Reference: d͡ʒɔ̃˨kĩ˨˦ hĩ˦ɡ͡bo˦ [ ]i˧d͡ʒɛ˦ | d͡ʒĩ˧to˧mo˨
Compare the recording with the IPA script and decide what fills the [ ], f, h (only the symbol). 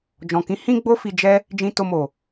f